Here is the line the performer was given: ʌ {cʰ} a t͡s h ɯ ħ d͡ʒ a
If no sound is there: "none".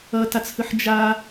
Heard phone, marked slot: t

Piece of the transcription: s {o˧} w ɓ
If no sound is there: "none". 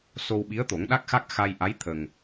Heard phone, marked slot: o˧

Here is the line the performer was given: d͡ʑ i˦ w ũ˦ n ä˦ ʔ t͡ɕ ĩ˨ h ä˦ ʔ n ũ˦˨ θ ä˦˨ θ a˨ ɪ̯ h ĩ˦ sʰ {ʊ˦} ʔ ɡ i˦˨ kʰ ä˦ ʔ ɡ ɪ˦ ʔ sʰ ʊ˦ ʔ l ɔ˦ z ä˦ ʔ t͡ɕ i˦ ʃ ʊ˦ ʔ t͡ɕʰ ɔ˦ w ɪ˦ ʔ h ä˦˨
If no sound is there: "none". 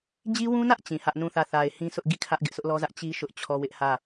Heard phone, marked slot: ʊ˦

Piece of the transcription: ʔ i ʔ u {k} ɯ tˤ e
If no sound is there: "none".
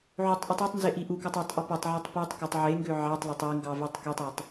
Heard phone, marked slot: k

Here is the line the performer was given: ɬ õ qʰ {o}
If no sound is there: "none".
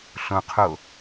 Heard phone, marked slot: o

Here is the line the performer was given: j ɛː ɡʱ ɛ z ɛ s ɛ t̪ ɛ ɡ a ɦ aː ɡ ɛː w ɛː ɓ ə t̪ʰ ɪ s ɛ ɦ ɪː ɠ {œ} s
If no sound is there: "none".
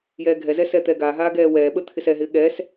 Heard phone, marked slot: ɛ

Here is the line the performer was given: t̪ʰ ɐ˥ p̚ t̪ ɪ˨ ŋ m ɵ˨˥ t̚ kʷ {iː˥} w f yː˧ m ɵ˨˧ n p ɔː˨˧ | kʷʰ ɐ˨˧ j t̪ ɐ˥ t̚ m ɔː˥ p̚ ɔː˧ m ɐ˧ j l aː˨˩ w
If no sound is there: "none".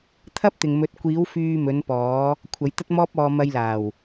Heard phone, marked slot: iː˨˧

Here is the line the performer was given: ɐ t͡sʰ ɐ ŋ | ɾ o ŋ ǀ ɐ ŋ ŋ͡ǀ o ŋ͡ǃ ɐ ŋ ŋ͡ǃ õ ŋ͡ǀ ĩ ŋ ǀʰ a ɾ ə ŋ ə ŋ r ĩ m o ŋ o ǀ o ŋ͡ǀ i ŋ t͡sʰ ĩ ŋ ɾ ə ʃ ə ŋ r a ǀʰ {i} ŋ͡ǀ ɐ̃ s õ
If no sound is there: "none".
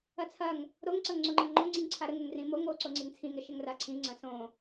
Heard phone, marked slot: ĩ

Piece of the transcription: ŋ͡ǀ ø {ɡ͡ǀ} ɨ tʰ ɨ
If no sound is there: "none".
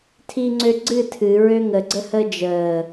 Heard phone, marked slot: ɡ͡ǀ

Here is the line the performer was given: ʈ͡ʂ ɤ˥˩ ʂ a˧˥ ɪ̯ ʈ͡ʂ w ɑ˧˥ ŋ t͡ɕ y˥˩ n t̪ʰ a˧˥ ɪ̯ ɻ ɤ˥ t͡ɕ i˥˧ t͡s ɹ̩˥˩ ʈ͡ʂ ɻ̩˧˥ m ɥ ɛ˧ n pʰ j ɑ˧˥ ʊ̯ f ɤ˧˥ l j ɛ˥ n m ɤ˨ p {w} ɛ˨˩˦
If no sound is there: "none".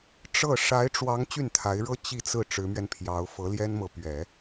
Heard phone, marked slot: ɥ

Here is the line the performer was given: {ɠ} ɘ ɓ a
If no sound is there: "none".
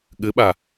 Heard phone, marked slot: ɠ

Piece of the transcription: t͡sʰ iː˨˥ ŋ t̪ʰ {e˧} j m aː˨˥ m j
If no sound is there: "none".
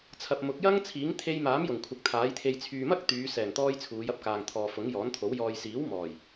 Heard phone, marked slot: e˧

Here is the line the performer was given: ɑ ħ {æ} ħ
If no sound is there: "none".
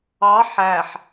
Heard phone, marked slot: æ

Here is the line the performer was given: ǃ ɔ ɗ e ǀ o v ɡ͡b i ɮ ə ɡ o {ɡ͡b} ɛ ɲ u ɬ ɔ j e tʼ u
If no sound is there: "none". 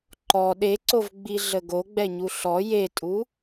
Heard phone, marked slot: ɡ͡b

